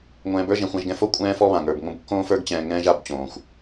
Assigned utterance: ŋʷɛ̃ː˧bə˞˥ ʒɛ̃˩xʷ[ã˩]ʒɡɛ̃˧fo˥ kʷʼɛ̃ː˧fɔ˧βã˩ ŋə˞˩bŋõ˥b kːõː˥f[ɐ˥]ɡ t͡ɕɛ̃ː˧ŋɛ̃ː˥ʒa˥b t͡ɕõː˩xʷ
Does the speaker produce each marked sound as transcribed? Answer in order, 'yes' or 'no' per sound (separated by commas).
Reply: no, no